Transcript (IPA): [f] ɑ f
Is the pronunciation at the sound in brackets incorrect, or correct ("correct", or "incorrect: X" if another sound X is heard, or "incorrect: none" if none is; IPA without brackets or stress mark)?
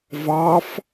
incorrect: v